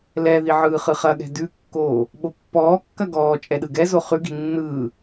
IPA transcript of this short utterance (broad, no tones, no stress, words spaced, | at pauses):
lɛði ʕɯːχɯχɐɠɛ̤ dʉkːoː | ɓopːɔːkːɐ ɡɔː t͡ʃʼɛɗɯɡɛzo χʉɡi̤ nːɯː